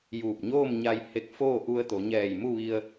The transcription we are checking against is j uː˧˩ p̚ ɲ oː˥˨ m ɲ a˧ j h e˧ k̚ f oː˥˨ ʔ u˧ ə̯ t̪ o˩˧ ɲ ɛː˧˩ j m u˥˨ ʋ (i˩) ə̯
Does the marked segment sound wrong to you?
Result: yes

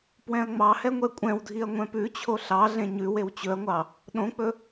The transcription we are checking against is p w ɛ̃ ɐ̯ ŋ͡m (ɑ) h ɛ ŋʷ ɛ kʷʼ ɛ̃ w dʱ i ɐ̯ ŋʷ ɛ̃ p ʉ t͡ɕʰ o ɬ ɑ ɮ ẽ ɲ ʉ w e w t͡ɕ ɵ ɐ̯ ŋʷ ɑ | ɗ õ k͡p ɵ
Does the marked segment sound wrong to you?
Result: no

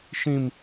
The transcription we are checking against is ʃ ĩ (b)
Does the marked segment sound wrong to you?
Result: yes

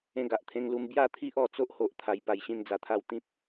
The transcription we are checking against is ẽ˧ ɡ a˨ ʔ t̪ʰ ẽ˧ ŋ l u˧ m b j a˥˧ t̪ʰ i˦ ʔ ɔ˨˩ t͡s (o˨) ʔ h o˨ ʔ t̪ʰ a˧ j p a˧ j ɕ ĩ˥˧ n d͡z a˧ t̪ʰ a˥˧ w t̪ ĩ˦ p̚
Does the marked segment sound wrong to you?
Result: yes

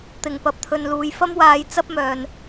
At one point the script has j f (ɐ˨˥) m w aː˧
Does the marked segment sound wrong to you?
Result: yes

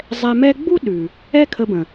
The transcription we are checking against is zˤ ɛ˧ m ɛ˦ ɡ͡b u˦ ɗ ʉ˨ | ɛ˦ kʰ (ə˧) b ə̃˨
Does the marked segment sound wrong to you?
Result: no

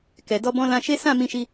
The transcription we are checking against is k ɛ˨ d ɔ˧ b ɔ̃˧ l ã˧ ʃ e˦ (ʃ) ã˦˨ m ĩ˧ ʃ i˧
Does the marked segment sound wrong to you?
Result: yes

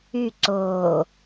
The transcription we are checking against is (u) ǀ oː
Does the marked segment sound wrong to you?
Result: yes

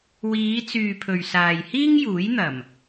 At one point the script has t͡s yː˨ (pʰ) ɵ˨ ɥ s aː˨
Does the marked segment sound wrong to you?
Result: no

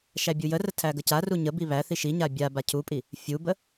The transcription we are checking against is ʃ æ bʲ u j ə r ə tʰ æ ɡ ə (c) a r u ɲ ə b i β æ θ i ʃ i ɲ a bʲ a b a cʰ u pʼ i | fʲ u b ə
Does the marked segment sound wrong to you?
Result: no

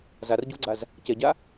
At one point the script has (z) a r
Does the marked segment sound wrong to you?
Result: no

